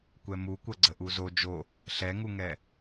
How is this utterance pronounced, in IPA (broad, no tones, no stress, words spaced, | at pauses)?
kʷɛmukʷɐɡ͡ǀə ʔuzo d͡ʒo | ɬɛŋuŋɛ